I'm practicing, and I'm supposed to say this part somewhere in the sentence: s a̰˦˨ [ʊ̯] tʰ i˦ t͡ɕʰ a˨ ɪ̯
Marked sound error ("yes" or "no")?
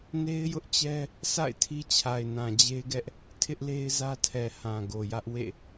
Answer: yes